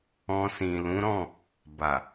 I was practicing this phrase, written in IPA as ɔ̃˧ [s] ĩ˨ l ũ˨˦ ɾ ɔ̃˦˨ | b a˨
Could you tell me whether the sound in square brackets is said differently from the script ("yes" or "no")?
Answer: no